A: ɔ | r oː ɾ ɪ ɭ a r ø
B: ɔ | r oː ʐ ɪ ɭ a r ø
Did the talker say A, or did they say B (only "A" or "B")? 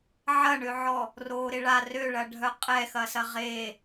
A